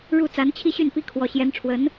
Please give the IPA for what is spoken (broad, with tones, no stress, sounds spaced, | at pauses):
ɻ u˥˩ t͡s a˧˥ n t͡ɕʰ i˥ ɕ y˥˩ n p i˥ kʰ w ɔ˧˥ ɕ j ɛ˧˥ n ʈ͡ʂʰ w ə˧˥ n